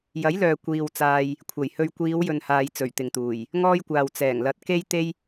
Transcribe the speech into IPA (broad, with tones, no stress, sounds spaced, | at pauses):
j ɐ˨˥ j l œː˨ kʷ iː˨ w t͡s aː˨ j | kʷʰ ɐ˨˩ j h ɵ˧ ɥ kʷ iː˨˧ w j ɵ˨ n h aː˧ j t͡s ɵ˨˩ ɥ t̪ ɪ˨ ŋ t̪ uː˨˩ j | ŋ ɔː˥ j kʷ aː˨ w t͡s ɛː˨˩ ŋ l ɐ˨˥ t̚ k e˥ j t̪ e˥ j